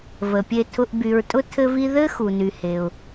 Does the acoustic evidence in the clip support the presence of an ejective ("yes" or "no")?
yes